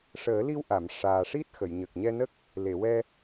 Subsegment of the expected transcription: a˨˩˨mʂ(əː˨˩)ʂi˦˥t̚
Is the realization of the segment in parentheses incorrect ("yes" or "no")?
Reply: yes